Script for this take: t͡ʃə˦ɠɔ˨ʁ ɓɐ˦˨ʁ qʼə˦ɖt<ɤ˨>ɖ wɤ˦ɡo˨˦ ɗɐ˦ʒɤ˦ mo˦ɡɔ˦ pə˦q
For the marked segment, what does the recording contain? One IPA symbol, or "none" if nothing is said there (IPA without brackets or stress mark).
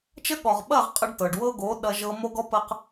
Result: ɤ˨